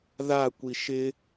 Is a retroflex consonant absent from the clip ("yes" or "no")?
yes